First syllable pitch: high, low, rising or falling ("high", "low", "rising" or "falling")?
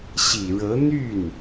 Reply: low